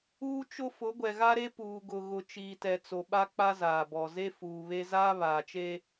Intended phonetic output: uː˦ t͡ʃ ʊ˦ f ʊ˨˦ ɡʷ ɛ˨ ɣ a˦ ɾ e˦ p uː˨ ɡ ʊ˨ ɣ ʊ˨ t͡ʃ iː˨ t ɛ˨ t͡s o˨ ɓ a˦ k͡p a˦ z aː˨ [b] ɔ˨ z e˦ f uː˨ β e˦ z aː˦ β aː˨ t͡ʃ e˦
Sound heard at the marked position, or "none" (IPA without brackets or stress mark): b